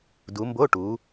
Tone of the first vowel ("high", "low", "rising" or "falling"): rising